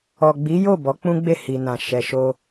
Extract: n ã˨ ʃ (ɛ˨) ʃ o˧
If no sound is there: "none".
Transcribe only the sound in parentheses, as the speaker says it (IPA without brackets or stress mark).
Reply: ɛ˨